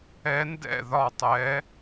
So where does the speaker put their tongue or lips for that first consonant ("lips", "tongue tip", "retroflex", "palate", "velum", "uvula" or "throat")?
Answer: tongue tip